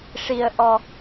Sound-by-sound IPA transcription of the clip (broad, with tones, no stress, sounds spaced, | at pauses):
ʂ i˧ ə̯ ʔ ɔ˧